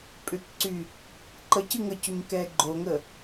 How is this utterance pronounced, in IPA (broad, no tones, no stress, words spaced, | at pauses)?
pʼʏkǀy | ǃəcɨ ŋəcʏɲkɛ ɡ͡ǃoŋə